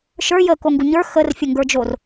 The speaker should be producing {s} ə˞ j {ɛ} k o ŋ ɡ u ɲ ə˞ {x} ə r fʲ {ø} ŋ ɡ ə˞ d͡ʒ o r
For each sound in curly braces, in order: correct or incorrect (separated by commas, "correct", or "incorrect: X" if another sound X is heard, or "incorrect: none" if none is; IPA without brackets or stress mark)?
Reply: incorrect: ʃ, incorrect: ə, correct, incorrect: ə